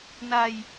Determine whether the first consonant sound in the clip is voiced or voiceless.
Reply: voiced